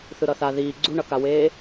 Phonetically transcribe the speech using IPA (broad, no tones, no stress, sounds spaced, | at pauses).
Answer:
θ ɯ ɾ ʌ θ a ð iː ɡ͡ǀ u ɳ ʌ k a w eː